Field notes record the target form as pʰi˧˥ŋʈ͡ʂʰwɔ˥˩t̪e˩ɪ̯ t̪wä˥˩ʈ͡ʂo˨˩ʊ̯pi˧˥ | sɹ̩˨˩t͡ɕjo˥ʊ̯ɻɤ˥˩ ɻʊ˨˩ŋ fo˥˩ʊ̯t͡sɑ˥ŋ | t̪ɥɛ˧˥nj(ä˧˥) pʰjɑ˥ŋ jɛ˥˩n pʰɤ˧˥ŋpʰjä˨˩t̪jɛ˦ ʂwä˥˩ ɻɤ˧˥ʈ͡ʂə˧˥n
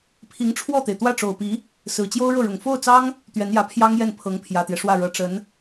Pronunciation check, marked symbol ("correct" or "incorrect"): correct